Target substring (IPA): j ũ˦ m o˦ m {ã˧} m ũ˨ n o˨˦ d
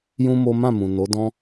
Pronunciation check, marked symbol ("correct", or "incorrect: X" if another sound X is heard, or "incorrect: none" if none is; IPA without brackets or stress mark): incorrect: ã˦˨